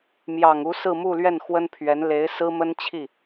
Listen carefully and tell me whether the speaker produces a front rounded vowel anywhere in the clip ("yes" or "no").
no